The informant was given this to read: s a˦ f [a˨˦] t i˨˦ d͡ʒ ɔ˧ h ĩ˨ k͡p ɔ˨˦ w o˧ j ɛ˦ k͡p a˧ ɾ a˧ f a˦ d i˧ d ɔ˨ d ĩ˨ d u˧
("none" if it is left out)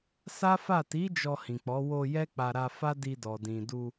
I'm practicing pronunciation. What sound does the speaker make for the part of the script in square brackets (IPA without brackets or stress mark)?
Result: a˦˨